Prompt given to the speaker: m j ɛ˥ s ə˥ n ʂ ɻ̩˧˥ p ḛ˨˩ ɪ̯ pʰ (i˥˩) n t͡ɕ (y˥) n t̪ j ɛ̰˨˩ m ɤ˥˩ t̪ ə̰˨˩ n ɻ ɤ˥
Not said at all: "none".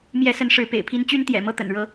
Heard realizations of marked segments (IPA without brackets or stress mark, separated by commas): i˥, y˥